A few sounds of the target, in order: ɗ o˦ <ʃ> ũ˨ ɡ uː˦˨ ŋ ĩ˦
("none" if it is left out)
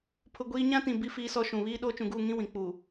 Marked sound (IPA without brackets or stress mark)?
t͡ʃ